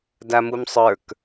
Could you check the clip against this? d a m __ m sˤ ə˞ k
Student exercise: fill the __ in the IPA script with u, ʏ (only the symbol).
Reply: u